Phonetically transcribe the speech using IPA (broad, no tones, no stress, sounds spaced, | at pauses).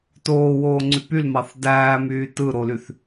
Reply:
t oː w oː ŋ͡ǀ y p y l m ɑ θ d æː m yː t ɯ ɾ o l y θ